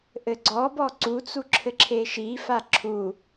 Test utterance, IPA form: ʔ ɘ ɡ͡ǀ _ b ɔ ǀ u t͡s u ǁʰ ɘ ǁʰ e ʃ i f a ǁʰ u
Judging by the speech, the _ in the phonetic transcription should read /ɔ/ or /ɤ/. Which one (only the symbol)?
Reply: ɔ